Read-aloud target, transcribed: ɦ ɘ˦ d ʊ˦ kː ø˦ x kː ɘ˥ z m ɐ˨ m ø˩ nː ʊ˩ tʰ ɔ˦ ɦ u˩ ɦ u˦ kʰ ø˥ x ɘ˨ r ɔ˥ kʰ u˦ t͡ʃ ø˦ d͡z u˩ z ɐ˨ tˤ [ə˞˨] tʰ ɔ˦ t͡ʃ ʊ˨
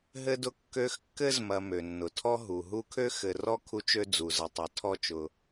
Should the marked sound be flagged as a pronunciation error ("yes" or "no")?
yes